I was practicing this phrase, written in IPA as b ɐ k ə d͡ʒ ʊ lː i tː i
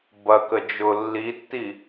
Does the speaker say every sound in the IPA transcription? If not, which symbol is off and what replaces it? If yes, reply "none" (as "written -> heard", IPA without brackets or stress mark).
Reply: none